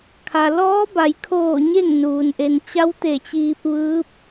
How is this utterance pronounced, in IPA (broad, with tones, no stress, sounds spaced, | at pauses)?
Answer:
kʰ a˩ l ɔː˧˥ b a˩˧ j kʰ oː˧˩ ɲ e˥˨ ŋ n uː˩ n ʔ e˩ n t͡ɕ a˧˥ w t̪ e˧˩ t͡ɕ iː˧ p̚ ʋ ɯː˧˥ p̚